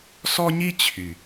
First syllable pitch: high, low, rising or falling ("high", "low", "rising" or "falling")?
high